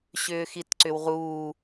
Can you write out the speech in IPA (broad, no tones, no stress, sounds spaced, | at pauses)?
ɕ ʏː x i t ǀ ʏ w ʁ uː